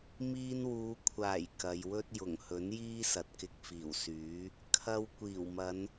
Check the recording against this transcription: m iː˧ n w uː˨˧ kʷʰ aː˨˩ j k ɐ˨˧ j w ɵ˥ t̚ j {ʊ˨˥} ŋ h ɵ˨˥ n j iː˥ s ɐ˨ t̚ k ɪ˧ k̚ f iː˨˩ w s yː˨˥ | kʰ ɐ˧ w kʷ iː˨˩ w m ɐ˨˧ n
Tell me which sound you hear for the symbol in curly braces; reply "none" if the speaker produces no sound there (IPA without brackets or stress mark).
ʊ˨˩